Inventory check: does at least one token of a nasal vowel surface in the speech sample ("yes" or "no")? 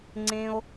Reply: yes